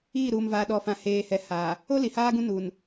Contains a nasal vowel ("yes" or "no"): yes